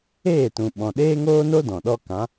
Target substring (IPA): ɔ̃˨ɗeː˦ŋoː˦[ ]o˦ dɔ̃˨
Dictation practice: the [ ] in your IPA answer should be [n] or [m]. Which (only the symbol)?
n